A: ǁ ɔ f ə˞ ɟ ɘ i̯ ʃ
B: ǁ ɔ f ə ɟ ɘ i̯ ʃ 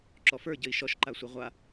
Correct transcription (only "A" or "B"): A